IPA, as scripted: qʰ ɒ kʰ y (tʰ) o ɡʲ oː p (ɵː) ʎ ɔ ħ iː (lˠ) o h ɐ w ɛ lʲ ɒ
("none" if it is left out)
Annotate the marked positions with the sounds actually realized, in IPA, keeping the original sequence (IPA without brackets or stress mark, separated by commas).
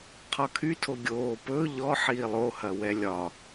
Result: tʰ, ɵː, lˠ